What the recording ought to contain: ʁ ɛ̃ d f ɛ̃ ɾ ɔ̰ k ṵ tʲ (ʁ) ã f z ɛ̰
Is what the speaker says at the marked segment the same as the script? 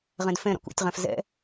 yes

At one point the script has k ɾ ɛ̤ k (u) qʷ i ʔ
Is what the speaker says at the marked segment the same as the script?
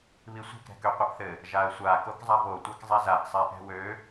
no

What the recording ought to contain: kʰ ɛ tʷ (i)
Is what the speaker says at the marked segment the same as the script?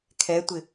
no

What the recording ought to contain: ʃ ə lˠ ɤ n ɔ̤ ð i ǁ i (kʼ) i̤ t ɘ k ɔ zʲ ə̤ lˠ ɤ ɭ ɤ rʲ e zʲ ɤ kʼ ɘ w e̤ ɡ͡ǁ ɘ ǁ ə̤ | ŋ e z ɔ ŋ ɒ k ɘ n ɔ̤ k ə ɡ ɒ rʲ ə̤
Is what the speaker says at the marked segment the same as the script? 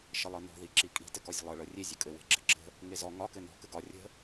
yes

